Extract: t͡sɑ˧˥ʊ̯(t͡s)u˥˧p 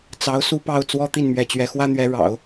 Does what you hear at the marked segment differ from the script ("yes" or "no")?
yes